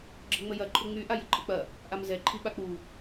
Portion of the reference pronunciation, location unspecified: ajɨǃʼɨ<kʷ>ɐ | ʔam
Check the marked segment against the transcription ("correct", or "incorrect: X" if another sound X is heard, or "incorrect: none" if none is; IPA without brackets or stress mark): incorrect: k͡p